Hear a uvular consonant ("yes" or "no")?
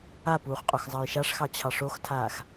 yes